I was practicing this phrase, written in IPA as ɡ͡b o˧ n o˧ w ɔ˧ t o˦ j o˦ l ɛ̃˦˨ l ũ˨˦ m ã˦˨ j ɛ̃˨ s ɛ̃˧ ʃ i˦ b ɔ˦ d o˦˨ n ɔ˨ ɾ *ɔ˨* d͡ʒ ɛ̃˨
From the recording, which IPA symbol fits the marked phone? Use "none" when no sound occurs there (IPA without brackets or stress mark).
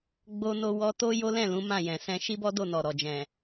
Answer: ɔ˨